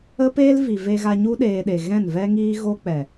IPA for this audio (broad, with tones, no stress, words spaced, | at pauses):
ə˦peː˦l vi˨ve˧ɣa˧ ɲu˦ɗeː˧ɗe˨ ɣɛ̃˦˨nvɛ˦ŋiː˦ ɣo˦k͡pɛ˨